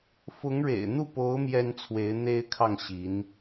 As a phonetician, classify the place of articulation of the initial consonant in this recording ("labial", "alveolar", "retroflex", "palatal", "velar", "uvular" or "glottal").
labial